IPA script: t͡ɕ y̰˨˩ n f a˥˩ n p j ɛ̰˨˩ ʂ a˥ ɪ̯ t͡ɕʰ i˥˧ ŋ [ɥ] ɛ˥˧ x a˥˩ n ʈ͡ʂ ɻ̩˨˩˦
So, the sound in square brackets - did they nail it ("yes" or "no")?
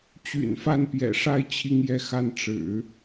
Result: no